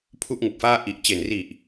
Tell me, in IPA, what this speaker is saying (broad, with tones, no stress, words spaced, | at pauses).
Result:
pʰu˥˩ʔŋɯ˨˩k̚faː˥˩ ʔi˨˩ʔt͡ɕe˨˩nri˨˩ʔ